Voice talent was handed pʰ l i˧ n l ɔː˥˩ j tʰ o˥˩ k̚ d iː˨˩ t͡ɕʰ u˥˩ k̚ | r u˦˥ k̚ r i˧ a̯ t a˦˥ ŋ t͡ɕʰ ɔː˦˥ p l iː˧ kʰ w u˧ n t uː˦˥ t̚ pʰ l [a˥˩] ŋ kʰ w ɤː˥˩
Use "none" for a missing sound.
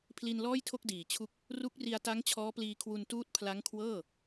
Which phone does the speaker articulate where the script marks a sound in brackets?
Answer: a˦˥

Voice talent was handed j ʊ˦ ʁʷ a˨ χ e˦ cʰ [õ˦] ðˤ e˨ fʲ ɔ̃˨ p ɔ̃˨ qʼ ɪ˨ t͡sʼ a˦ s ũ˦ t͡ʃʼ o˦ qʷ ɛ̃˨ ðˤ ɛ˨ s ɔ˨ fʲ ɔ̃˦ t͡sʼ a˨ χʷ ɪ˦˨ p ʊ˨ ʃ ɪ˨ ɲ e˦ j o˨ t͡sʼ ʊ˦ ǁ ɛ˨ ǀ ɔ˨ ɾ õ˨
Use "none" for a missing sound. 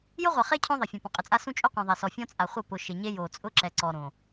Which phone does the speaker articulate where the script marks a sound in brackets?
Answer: õ˦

